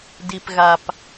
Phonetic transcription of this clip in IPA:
d i˨ p ɣ a˨ p

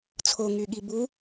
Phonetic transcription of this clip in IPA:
t͡sʰ o ŋ y ɠ i b u

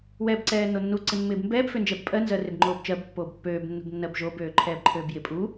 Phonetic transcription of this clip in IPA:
w ɛː b ǀ ɛː nː o nː u ǀ ɪ mː ɪː b m b ɛː b f ø n d͡ʒ ɛ b pʼ ɜ n z ɜ r ɪ b ŋ͡ǃ oː b t͡ʃ ɜ b pː oː b pː øː b nː ṳ b nː ɜ b ʒ o b øː ǃʰ ɛː b ǃʰ øː b j ɪ pʼ u

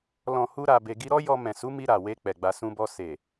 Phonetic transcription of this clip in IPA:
l ɔ̃˨ h u˧ ɾ a˧ b e˧ ɡ i˦ ɾ ɔ˦ j ɔ˧ m ɛ̃˨ s u˨˦ m i˧ ɾ a˨ w e˧ k͡p ɛ˨ ɡ͡b a˧ s ũ˧ b ɔ˧ s e˨

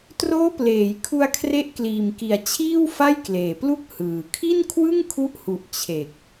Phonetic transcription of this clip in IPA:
t r oː˦˥ p l eː˩˦ j kʰ u˧ a̯ kʰ r e˦˥ ʔ k l iː˨˩ m k i˨˩ a̯ t͡ɕʰ iː˥˩ w f a˥˩ j k l eː˨˩ p l u˥˩ k̚ h ɯː˨˩ kʰ i˥˩ n kʰ w ɯ˥˩ ŋ kʰ u˦˥ ʔ h u˨˩ ʔ t͡ɕʰ e˨˩ k̚

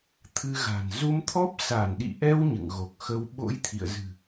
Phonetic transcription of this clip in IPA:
t̪ʰ ɨ˧ ɣ a̤˨˩ n z u˧ m t̪ʰ ɔ˦˥ p̚ s a˧˩ n ɗ ḭ˧˨ ʔ ɛ˧ w ɲ ɨ̰˧˨ ŋ ɣ o˨˩ k̚ x ə˧ w ɓ o̰˧˥ j t̪ʰ ḭ˧˨ ə̯ z ɨ̤˨˩

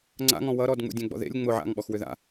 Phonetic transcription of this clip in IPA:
ŋ͡ǀ a̰ ŋ ɔ̃ w ʌ ɾ ɔ d ŋ͡m ṵ dʲ ɛ̃ ɡ͡b ɔ̰ ð ḛ lʲ ŋ͡m ʊ ʕ a̰ ŋ ɓ ɔ x w ʏ ð a̰

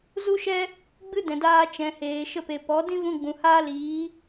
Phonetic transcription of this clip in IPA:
z u˦ ʃ ɛ˦ | ɡ͡b ɨ˦ d ɛ̃˨ d aː˧ t͡ʃ ɛ̃˨ h eː˨ ʃ ə˧ p e˨ p ɔ˨˦ d ĩ˦ v ũ˧ ɡ͡b ũ˨ h aː˦ l iː˨˦

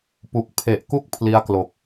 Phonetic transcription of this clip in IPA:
p u˨˩ k̚ pʰ e˨˩ ʔ k u˥˩ k̚ pʰ l i˦˥ a̯ k l o˨˩ k̚

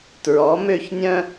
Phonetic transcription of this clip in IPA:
t ɹ ɔ˩˧ m ø˧˩ ç nʲ œ̃˧

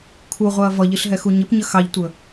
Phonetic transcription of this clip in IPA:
kʰ u ʁʷ ɛ ɐ̯ v ʌ ʎ i ɬ ɦ ɛ x u ɲ ɪ p ɲ ə x ɑ ʎ tʷ ə

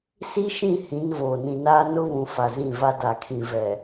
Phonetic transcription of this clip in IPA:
s i˦ ʃ ĩ˦˨ h ĩ˨˦ n v oː˨ n ĩ˨ n aː˦ n ʊ˦ β ũ˨ f a˨ z ĩ˦˨ v a˦ d a˨ kʰ ĩ˨ v ɛ˨

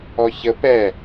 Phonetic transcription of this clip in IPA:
ɔ ç ə p ɛ

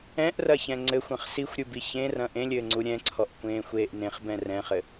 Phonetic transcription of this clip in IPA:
ɛ̃ ʔ r ɐ ç ɛ̃ ŋ͡ǀ ɘ xʷ ɐ̃ χ s i xʷ ɾʲ u b i ç ẽ r ɐ̃ ʔ ẽ lʲ ɘː ŋ͡ǀ u ɾʲ ɛ̃ ǀʰ ɔ ʔ kʷ ẽː xʷ eː ʔ n ẽ χ b ɛ̃ r ɛ̃ χ ɘ

